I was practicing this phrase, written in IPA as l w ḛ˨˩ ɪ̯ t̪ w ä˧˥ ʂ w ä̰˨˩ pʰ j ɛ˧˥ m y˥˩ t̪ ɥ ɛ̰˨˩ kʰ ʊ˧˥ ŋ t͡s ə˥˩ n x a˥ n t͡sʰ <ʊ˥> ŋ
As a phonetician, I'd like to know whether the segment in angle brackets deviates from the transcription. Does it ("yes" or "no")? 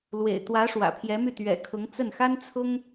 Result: no